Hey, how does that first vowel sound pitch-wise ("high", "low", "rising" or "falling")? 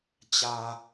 low